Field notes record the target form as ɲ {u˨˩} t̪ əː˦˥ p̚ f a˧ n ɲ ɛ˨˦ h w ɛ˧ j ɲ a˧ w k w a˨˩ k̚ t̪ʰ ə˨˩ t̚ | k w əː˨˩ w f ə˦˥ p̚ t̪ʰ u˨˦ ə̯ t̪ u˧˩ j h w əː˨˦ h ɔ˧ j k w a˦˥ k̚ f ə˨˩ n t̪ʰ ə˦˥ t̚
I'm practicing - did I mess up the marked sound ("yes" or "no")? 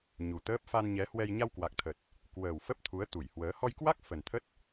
no